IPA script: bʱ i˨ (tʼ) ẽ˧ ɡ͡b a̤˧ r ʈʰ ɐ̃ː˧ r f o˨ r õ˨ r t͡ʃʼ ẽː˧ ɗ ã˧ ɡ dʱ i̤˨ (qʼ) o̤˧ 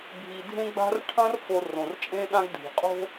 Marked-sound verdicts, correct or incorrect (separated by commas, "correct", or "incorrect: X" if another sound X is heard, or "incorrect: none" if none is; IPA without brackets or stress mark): incorrect: dʱ, correct